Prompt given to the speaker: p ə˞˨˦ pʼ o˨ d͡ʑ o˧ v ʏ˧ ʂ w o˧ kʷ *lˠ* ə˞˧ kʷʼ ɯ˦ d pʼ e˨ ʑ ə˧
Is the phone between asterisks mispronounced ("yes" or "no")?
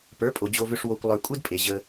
no